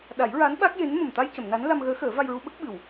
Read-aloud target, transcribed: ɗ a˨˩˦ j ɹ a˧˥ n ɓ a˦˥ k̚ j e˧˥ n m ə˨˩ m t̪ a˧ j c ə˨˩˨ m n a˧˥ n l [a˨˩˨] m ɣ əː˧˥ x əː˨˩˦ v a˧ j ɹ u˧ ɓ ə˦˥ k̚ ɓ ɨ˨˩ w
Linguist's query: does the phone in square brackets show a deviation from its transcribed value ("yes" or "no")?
yes